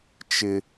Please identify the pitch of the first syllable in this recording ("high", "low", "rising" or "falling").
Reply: high